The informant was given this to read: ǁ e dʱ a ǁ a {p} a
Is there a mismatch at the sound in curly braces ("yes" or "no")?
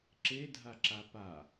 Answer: no